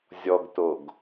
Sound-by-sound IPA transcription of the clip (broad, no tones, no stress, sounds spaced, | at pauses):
zʲ ɔ ɡ t o ɡ